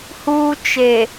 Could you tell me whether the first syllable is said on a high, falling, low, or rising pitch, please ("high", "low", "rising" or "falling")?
high